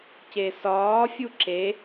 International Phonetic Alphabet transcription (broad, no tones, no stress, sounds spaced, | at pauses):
c e s ɒː fʲ u ǁ e